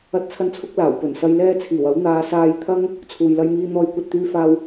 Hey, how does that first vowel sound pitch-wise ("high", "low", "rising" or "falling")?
high